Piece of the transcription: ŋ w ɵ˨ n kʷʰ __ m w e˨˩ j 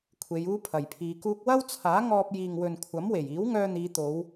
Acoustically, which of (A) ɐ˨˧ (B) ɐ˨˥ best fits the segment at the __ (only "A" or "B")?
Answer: B